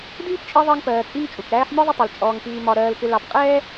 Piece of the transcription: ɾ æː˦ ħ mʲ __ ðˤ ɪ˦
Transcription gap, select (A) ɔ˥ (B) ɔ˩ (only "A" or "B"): A